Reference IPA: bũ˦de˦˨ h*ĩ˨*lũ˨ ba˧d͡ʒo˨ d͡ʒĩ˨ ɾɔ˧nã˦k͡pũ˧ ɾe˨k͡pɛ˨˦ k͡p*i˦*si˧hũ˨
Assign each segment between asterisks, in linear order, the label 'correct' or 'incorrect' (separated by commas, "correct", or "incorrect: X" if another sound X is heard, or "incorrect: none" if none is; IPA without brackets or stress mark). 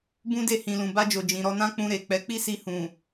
correct, correct